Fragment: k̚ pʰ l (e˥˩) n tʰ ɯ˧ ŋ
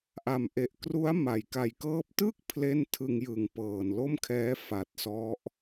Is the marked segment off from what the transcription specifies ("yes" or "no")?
no